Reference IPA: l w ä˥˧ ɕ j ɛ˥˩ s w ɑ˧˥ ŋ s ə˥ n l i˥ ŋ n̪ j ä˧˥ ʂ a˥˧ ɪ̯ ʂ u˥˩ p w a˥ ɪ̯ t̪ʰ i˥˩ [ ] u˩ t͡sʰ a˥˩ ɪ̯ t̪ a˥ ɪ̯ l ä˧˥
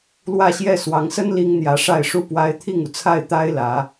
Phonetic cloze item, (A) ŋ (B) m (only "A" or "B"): A